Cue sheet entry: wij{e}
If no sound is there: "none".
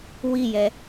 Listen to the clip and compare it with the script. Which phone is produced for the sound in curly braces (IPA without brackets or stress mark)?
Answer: ɛ